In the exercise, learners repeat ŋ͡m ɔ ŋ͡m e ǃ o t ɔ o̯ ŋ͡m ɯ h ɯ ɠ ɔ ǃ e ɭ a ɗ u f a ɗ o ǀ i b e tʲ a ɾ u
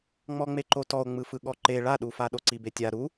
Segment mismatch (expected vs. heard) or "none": h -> f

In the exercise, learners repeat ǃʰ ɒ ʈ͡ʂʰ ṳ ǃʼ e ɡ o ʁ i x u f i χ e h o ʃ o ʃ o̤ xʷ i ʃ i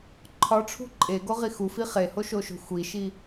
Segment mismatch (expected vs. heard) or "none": none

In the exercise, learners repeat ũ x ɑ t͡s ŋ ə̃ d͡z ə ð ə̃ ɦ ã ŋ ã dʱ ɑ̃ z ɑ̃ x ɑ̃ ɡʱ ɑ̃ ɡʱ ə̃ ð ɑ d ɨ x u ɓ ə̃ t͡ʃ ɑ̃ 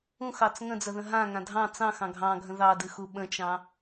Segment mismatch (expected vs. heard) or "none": z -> t͡s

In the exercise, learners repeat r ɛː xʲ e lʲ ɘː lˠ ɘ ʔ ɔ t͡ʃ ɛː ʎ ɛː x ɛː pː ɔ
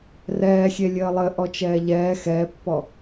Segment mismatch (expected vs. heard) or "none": none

